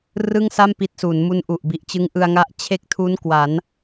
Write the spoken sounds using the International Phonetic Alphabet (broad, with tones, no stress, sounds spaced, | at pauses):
r ɯ˥˩ ŋ s a˥˩ m p i˦˥ t̚ s u˩˦ n m u˦˥ n ʔ u˨˩ ʔ b i˨˩ ʔ t͡ɕ ɯ˦˥ ŋ ʔ ɯ˧ a̯ ŋ a˦˥ ʔ t͡ɕʰ e˥˩ k̚ tʰ u˦˥ n k w a˩˦ n